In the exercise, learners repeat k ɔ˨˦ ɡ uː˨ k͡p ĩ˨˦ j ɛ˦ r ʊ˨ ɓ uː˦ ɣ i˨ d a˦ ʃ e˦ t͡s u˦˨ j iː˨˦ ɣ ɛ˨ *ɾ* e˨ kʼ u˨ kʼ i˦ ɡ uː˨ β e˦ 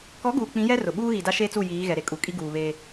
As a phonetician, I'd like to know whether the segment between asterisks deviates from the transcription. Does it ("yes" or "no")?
no